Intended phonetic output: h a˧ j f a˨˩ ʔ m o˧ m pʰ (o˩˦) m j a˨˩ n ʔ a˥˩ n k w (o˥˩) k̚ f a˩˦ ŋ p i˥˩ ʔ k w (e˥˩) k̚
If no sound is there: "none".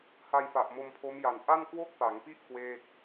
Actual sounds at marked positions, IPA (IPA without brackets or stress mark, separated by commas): o˦˥, o˥˩, eː˥˩